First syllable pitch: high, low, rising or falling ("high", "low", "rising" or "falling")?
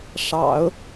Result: low